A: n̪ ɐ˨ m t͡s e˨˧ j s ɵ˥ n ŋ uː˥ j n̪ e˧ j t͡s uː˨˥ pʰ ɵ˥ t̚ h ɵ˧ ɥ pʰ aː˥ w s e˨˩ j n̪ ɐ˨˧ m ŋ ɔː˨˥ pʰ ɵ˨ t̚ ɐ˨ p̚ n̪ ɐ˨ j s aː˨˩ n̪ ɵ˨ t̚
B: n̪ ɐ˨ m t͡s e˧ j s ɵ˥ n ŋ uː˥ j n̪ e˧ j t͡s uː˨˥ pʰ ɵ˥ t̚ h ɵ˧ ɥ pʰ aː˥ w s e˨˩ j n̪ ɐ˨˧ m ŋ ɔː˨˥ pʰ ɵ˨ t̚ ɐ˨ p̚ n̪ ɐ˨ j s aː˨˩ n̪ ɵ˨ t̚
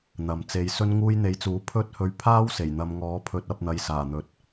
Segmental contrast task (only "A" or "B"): A